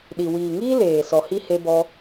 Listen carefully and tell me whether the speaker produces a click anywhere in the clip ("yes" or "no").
no